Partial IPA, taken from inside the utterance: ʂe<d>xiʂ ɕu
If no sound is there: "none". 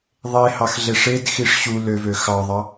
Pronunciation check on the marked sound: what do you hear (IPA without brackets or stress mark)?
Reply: d